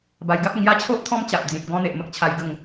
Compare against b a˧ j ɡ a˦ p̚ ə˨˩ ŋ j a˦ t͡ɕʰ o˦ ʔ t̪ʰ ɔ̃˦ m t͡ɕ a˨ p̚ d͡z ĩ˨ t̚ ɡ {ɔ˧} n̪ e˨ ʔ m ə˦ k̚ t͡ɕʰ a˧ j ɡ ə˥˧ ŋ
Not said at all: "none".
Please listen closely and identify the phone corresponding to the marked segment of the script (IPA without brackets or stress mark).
ɔ̃˧